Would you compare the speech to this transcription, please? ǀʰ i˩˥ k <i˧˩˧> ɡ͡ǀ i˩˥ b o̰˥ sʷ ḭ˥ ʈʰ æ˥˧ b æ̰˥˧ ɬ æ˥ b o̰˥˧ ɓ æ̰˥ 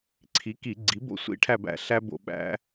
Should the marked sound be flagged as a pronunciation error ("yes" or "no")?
no